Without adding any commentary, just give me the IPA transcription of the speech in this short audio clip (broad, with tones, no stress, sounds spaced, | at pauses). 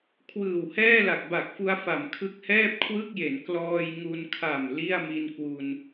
kʰ w ɯː˨˩ w h ɛː˥˩ l a˨˩ k̚ b a˨˩ k̚ f u˧ a̯ f a˨˩ m kʰ ɯ˦˥ k̚ h ɛː˥˩ p̚ kʰ w ɯ˥˩ k̚ j e˩˦ n k l ɔː˧ j ŋ u˧ n kʰ a˨˩ m l i˥˩ a̯ m i˧ n k w u˧ n